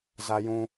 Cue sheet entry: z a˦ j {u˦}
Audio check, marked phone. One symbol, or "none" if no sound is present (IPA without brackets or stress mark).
ũ˦